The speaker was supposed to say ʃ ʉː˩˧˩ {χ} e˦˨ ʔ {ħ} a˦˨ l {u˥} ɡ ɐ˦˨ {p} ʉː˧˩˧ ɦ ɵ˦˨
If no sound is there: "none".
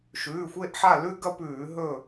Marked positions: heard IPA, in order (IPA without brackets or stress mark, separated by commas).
xʷ, ħ, ʉ˥, p